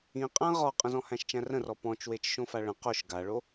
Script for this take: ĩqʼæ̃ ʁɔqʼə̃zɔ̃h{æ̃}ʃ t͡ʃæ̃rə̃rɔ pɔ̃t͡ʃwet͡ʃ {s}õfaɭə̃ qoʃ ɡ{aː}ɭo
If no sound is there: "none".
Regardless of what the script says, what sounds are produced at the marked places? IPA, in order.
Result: æ̃, ʃ, a

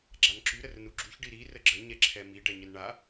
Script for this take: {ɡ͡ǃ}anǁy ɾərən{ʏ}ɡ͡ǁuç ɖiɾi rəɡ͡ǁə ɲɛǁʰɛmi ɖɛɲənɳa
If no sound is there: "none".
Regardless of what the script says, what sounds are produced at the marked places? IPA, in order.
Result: ɡ͡ǁ, u

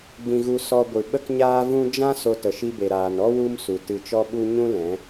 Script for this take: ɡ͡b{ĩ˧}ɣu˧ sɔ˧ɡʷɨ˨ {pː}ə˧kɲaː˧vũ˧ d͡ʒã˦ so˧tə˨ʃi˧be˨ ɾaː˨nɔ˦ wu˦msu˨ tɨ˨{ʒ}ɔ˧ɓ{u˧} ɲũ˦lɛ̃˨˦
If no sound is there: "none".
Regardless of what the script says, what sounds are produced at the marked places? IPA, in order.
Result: ĩ˧, ɓ, t͡ʃ, u˧

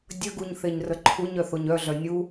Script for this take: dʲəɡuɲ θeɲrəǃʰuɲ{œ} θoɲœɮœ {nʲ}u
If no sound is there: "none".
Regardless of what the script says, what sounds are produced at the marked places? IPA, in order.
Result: œ, nʲ

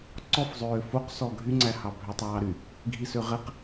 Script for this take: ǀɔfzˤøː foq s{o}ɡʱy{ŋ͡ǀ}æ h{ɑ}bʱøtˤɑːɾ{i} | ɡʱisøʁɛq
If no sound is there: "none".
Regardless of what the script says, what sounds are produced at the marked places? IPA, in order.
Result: ɔ, ŋ͡ǀ, ɑ, y

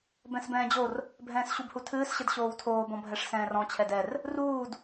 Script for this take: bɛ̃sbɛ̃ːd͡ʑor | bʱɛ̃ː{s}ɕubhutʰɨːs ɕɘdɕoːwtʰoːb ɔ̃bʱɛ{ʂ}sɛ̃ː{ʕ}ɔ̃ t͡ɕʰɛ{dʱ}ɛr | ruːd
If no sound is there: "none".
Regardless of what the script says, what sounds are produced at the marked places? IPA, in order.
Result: s, ʂ, r, d

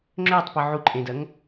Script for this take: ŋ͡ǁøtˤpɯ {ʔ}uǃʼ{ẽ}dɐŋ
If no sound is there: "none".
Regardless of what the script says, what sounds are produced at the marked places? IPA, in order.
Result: ʕ, ẽ

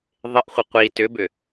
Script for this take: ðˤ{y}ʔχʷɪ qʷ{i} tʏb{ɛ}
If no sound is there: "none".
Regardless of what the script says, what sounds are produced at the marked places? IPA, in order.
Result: ɪ, i, ʏ

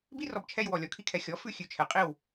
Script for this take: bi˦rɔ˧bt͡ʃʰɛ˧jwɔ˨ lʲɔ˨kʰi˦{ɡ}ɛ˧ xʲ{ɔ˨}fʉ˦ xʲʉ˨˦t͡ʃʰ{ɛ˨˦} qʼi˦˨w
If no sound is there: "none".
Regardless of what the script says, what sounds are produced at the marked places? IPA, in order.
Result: kʰ, ɔ˨˦, ɛ˨˦

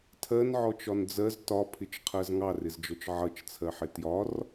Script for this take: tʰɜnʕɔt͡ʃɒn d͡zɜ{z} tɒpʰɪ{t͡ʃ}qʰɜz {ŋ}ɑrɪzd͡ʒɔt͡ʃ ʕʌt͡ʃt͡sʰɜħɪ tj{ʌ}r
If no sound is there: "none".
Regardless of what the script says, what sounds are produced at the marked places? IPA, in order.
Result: z, t͡ʃ, ŋ, ɒ

